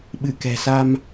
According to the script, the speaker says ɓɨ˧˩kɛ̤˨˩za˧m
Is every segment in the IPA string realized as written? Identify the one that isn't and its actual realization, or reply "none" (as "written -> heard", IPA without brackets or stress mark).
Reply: z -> s